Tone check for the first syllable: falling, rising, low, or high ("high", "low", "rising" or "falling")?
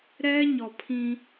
high